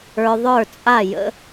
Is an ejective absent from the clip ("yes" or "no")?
no